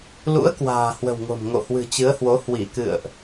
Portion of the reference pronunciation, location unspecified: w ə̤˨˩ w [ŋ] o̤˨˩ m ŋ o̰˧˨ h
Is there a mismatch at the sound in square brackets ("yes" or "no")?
no